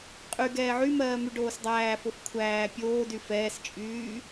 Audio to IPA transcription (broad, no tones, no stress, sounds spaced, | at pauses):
qʼ y ɡ ɛː ʕ y m ɜː m y ɖ oː s dˤ æː f o f kʷʰ æː pʲ oː d y f ɛː s t͡ʃʼ yː